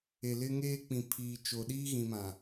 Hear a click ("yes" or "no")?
no